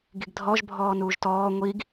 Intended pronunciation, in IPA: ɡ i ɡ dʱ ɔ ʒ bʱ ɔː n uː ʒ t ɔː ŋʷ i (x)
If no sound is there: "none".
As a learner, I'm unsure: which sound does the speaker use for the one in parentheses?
ɡ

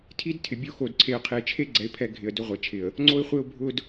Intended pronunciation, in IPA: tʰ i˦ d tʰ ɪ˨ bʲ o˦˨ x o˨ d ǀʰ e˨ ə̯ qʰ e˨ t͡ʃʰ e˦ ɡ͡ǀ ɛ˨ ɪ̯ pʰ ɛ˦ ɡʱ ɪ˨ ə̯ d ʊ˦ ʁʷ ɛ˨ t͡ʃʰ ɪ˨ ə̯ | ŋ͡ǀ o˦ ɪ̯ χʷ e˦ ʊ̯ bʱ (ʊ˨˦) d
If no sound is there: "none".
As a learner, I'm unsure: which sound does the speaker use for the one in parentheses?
ʊ˦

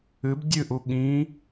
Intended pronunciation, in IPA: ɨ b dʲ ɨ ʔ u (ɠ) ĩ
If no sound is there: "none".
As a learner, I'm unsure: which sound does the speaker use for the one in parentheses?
ɠ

